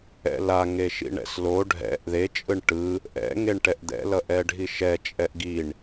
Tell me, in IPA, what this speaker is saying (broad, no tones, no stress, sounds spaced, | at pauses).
ɛ̰ l a ŋ e ʃ ḭ ɳ ɛ̰ s l o ɖʱ ɛ̰ ʔ ð e t͡ʃʼ ɯ ɳ ʈ ɯ | ʔ ɛ̰ ŋ e ɳ ʈ ɛ ʔ d̪ ɛ̰ l ʌ ʔ ɛ ɖʱ i ʃ ɛ t͡ʃʼ ɛ ʔ ɡ i ɳ